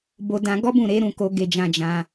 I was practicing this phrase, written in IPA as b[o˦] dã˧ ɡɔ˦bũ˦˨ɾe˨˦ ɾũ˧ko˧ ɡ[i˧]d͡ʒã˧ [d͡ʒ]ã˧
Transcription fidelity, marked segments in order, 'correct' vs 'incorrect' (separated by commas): incorrect, incorrect, correct